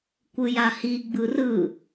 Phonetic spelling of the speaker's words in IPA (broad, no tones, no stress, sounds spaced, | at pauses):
kʷ ɯ j a h i ɡ͡b ɯ r ɯ